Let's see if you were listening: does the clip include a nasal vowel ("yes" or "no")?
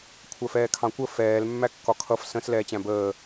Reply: yes